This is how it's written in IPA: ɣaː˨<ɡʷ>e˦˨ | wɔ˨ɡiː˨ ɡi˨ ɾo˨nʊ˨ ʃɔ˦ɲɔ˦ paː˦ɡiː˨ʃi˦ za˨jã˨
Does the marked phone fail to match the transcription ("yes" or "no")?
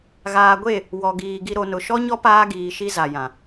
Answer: no